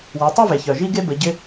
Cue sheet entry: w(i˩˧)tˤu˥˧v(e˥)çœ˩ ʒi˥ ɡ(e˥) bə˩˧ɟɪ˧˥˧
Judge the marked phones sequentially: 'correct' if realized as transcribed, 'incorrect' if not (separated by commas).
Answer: incorrect, incorrect, correct